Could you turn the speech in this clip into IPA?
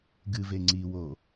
ɡɨve ŋ͡ǀiwo

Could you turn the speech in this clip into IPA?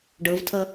ɖɤvtʰʌ

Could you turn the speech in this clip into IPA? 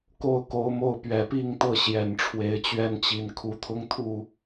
ko˥˨ʊ̯ko˨˦ʊ̯mo˥˨ʊ̯ pɥɛ˨˩pi˥˨ŋt̪ɤ˥˨ ɕjɛ˨˩nʈ͡ʂʰwe˨˦ɪ̯t͡ɕɥɛ˦nt͡ɕi˨˦n kʰu˨˦t̪ʰʊ˦ŋt̪ʰu˥˨

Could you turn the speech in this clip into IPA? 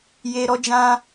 je˧ɾɔ˧d͡ʒã˧

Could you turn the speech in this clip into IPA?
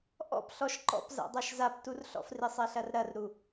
ʔɔ̰pɬɔʃ ǃɔ̰pza̰ dˤaʃzap turɬɔ̰fri sˤɛɬɐrɾɐrɾu

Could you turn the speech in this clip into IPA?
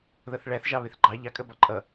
ðʌθɭæθʒɑ βɪθɡ͡ǃɑ ʎɑkʼɜb ɒǃʼʌ

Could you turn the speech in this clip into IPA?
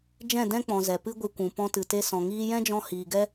d͡ʒɛ̃˦˨dɛ̃˦k͡pɔ̃˨ zɛ˨pɨ˦ɡʷɨ˧kʷũ˨ pɔ̃˧tɨ˨te˧sɔ̃˨ ŋiː˧jɛ̃˦d͡ʒɔ̃˧ hiː˨ɡɛ˦

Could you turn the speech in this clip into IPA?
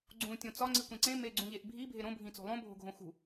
ɡ͡ǀũ tʲõt͡sɒ ŋ͡ǀikʷẽǀẽ meɡ͡ǀũʎeʔbʱi bʱeɾõ bʱĩt͡so̤lˠõ bʱo̤ɡʱõxṳ

